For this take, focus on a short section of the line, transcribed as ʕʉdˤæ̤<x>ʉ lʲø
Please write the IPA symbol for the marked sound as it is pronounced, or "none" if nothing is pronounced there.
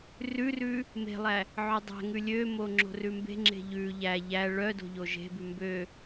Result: ŋ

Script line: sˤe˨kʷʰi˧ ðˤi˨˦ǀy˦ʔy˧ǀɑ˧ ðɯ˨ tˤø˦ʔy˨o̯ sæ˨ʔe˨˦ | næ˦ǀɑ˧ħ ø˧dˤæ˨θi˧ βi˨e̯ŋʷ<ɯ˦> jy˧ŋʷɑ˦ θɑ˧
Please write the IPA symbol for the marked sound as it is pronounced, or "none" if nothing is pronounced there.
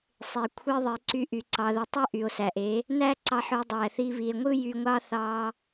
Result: ɯ˦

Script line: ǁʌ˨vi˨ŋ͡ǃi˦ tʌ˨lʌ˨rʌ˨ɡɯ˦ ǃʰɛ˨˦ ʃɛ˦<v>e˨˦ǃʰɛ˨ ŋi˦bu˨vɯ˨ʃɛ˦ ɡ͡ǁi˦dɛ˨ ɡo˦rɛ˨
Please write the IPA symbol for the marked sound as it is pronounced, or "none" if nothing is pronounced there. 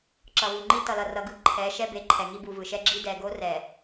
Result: b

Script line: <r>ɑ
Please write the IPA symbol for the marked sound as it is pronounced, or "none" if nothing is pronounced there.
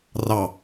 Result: r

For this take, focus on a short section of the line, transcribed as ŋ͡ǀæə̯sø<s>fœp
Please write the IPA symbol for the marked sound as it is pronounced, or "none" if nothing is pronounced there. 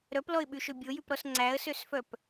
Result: s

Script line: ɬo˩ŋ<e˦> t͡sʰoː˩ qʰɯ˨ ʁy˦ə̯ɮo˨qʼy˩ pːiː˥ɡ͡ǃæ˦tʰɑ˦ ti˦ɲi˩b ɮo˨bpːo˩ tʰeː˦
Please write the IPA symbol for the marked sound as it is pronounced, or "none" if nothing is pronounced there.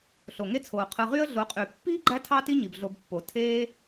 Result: e˦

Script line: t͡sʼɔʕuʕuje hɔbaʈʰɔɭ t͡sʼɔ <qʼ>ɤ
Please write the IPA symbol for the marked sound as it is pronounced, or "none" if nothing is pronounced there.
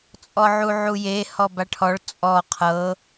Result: qʰ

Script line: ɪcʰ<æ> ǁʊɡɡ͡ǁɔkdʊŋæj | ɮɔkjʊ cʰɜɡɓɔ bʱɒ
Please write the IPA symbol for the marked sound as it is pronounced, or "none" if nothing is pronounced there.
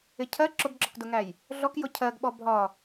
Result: ɜ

